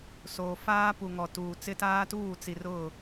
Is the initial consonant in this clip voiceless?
yes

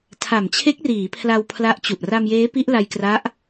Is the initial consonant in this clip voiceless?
yes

